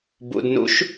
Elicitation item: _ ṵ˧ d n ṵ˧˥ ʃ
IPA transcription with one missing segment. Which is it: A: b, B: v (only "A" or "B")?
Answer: A